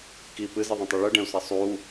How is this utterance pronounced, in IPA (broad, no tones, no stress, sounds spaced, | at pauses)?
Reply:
k i p ɨ z ɨ ðˤ ɛ̃ tˤ ɨ ɭ ʌ ɖ ɛ̃ u̯ s ʌ sˤ u